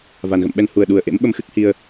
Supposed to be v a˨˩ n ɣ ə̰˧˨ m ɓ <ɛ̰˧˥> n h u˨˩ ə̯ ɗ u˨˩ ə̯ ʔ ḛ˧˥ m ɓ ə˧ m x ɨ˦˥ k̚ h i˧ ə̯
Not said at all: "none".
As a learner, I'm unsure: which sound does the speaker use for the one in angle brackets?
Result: ɛ˧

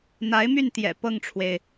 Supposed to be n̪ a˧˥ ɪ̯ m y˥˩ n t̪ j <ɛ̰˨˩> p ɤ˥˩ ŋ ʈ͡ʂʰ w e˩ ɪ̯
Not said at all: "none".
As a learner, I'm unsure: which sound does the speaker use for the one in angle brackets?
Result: ɛ̰˨˩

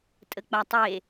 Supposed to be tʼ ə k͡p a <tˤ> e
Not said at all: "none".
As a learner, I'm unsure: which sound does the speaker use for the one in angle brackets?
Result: tˤ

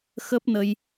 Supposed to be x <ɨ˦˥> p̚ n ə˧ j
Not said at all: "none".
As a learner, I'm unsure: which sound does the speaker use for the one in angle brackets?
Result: ə˦˥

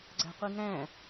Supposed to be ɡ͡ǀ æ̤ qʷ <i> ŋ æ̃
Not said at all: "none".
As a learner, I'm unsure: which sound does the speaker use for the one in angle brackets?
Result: i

